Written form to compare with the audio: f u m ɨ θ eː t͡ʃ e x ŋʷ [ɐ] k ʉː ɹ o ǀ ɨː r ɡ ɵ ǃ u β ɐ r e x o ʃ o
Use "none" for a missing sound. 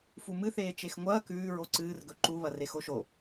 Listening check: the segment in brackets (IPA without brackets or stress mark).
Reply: ɐː